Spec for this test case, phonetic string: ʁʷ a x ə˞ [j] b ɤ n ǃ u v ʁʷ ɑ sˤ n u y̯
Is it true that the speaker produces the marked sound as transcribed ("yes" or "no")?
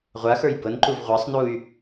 yes